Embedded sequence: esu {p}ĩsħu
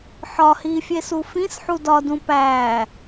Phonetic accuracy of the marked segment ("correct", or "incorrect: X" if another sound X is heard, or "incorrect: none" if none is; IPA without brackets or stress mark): incorrect: f